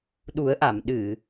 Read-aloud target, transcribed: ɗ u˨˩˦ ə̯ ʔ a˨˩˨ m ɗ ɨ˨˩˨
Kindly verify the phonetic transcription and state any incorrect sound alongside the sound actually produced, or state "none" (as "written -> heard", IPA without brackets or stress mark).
none